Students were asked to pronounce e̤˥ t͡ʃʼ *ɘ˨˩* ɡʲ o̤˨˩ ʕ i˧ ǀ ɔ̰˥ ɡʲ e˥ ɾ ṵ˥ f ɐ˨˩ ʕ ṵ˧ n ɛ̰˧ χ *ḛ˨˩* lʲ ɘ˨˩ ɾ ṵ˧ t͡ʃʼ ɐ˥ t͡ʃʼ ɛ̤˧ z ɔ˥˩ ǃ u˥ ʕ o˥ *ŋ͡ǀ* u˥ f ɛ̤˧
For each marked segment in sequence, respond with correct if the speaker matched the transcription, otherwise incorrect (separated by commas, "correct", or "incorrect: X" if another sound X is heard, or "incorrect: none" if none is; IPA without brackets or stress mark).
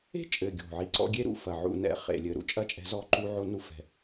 correct, correct, incorrect: n